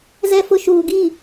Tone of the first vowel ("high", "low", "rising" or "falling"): low